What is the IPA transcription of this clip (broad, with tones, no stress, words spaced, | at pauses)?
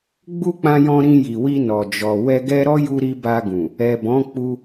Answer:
ɡ͡bu˦k͡pã˧jɔ̃˧ ɾĩ˧ji˨wi˧ nɔ˨d͡ʒɔ˨ wɛ˧ɡɛ˦ ɾɔ˦ju˧ɾi˧ ba˧ɡũ˨ | ɛ˨bɔ̃˨˦k͡pu˧